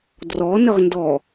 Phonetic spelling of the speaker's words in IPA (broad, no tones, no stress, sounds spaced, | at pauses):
d r ɔ n ə ʁ n d ɔ